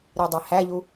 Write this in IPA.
ɾidˤehæʎu

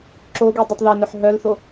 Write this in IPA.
ǁoɡi dˤitˤðɛnœħ ɦœlθo

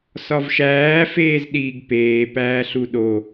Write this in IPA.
sɒvʃæː feːzɗiːɡpeː pæːɬuɗo

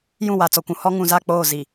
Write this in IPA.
jũ˦˨wa˨t͡sɔ˨kʷũ˨ hɔ˦ŋũ˨za˦˨ k͡poː˦˨zi˨

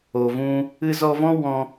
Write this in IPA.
o˨vũ˧ | ɨ˧zɔ˧vɔ̃˦ wɔ̃˧

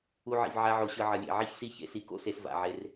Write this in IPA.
u˧ʕḭ˨v ʕa˧ʕo˨ɕɯ˨ ʕʌ˨lʲḛ˨ ʕi˦çsi˦ çḛ˧si˧ko̰˦se˧s va̰˨ʕe˧r

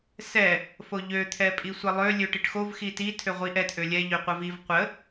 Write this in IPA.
sɛ | foʎø t̪ʰɛpʼisʷəlˠø lʲøʈiʈxov xiti tʰøʁʷiʔɛt ʔølʲɛ ʎøqʷəviv qʷə

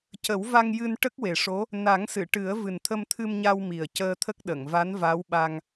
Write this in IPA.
cə˨˩˦w va˧ŋjɨ˧n ʈə˦˥k̚we˨˩ʂo˧˥ | na˨˩˦ŋsɨ˨˩˨ʈɨ˨˩˦ə̯ vɨ˨˩nt̪ʰə˧mt̪ʰɨ˧mɲa˧w mi˨˩ə̯ cəː˧t̪ʰə˦˥k̚ ɗə˨˩˨ŋva˧˥nva˧˥wɓa˧ŋ

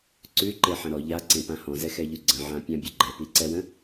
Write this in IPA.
ǀʉǃeħə̃ ɾɔ ʎaǀẽpã hɔ̃zɛxɛʎʉ ɡ͡ǀə̃ʕãpʲãbʲə ɡ͡ǃɛpiǀɛwə̃

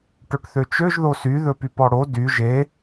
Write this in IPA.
ʈɵʈθøt͡ʃøʒ ðosy ðɵpypɔɽo dy ʒe

